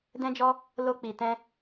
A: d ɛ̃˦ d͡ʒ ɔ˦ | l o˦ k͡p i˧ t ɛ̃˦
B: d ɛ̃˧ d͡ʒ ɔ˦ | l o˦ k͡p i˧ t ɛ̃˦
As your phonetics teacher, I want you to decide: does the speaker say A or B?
A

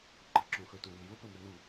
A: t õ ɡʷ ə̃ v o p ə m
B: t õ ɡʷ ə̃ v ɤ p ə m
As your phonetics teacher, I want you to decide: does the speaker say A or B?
A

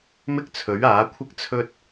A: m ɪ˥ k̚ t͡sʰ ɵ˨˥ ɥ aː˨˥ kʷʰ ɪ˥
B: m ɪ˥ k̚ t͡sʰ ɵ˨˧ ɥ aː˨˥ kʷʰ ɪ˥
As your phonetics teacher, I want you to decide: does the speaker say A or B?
A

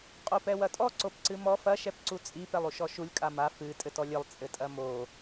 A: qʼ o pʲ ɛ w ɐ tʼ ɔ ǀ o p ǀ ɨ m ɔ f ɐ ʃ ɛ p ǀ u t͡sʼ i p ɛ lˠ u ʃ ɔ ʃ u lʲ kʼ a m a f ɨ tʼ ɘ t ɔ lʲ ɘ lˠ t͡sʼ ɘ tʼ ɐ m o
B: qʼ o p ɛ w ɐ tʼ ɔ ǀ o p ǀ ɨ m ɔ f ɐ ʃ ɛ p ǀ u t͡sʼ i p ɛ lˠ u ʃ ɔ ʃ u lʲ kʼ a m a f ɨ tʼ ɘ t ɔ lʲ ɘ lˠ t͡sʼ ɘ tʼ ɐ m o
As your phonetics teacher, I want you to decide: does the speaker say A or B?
B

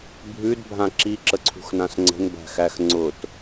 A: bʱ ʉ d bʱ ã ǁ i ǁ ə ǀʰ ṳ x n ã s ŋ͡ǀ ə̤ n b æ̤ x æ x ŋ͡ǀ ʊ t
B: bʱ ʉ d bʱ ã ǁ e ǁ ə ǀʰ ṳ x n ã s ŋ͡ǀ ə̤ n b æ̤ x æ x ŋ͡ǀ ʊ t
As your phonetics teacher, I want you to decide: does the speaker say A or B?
A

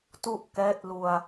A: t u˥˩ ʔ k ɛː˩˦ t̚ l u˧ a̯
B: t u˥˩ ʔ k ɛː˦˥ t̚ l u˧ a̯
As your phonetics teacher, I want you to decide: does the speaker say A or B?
B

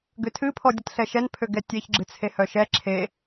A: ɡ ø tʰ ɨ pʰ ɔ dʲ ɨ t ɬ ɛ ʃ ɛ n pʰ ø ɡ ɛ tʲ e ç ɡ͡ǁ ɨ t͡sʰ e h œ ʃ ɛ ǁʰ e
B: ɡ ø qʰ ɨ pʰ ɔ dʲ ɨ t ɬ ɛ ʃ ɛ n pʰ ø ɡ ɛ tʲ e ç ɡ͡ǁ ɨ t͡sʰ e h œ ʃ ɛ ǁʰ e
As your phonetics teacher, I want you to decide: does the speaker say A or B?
A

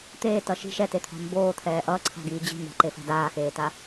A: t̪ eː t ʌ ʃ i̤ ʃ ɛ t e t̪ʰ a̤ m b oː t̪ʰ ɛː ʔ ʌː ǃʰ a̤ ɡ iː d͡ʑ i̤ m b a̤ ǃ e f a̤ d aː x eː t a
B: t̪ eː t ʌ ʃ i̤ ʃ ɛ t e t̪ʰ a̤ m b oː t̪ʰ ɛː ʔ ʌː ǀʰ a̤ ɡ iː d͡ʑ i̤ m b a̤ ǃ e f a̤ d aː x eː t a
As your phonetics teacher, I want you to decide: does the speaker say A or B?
B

